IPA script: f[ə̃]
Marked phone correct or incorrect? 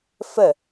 incorrect